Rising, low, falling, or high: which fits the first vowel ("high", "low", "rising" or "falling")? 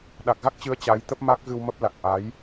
low